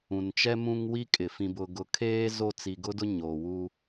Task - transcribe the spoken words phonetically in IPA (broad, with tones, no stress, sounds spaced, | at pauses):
ũ˨ n t͡ʃ ɛ˦ m ũ˦ ŋ w i˦ kʼ ɪ˨ f ĩ˨ b ʊ˨ ɡ ʊ˨ kʰ eː˦ z o˦˨ t͡s i˨ ɡ ʊ˦ d ʊ˦ ɲ o˨ w u˦